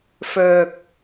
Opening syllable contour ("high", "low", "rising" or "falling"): low